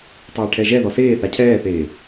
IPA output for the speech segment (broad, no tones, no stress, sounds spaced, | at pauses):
tˤ a i̯ ʈʰ ɛ ʒ ɛ ð ɔ s eː θ a cʰ ɛː θ eː